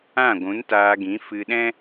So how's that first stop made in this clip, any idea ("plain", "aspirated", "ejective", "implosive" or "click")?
plain